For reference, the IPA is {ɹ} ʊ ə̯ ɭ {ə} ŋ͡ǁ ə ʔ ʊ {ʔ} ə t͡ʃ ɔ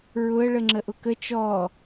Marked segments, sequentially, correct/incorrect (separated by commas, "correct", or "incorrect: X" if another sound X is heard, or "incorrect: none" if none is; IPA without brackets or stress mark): correct, correct, incorrect: k